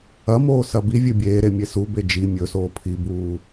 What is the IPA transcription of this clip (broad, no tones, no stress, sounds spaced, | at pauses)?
ɐ m oː s ɐ b i vʲ ɨ bʲ eː ɾ e mʲ e s u b e d͡ʒ i mʲ ɵ s oː pʰ i b uː